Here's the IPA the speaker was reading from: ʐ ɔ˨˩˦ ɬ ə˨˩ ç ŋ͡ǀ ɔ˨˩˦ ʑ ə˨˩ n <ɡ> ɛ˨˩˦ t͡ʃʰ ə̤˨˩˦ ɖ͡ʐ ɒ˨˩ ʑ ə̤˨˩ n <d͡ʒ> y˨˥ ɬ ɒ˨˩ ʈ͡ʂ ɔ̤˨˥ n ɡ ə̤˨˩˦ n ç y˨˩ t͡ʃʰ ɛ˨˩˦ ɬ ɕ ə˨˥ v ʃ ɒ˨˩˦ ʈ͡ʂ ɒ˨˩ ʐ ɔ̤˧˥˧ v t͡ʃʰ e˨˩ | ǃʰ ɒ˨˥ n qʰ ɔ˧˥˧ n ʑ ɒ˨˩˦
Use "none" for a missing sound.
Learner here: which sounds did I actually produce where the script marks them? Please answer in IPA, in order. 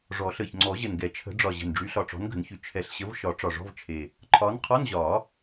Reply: ɡ, ɖ͡ʐ

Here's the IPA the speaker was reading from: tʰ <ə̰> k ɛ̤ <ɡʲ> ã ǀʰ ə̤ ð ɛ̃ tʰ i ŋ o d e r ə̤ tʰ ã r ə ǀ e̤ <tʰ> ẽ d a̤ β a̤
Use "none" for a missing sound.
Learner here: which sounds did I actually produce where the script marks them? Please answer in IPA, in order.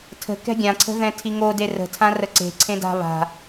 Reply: ə̤, ɡʲ, ǀʰ

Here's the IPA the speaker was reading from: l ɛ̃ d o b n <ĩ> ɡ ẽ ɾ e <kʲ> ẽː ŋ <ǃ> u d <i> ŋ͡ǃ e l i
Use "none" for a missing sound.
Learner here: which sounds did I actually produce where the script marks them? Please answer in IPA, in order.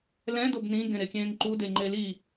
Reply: ĩ, kʲ, ǃ, e

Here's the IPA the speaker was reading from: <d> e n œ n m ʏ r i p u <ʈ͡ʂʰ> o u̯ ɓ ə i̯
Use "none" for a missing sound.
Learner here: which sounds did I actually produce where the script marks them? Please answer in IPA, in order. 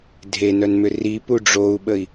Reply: dʱ, ɖ͡ʐ

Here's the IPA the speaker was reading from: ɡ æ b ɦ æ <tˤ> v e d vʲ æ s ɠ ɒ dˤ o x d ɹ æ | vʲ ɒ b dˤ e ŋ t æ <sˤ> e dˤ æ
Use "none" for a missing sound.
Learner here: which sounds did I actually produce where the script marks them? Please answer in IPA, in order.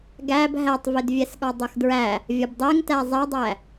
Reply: tˤ, zˤ

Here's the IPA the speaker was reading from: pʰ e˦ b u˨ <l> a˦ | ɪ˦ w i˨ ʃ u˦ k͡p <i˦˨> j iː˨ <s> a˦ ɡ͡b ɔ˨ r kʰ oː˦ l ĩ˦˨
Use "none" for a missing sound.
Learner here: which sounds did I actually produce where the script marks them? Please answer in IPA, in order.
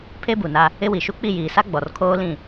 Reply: n, i˦˨, s

